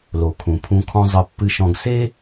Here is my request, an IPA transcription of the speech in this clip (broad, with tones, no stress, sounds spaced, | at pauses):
l o˩ kʰ ũ˩ pʰ ũ˨ kʰ ɔ̃˨ zˤ ɨ˩ pː ɨ˨ ʃ ɔ̃˨ ɡ s e˥